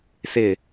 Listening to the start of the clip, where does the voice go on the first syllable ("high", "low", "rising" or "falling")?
falling